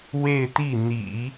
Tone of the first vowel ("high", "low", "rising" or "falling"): falling